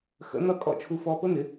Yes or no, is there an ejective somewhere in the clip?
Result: yes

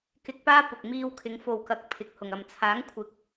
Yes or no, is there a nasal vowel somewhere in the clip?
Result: no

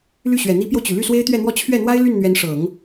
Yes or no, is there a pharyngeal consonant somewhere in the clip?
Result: no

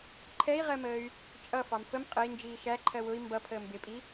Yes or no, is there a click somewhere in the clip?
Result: yes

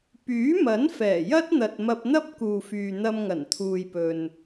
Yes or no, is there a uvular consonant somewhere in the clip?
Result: no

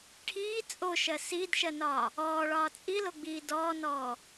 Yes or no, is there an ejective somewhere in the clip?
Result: yes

